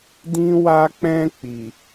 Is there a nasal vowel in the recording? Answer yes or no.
yes